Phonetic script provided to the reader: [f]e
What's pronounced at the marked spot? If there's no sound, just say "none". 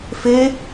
f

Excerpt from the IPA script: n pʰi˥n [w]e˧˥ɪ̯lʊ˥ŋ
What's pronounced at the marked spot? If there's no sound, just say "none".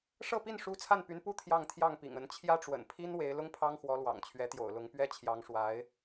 w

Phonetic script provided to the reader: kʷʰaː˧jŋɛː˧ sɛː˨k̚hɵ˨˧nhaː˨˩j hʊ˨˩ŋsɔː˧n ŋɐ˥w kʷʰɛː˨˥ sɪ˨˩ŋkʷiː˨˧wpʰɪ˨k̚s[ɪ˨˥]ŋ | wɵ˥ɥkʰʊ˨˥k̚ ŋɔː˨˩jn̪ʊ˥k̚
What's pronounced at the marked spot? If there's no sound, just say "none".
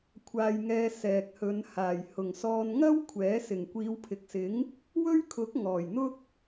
ɪ˨˥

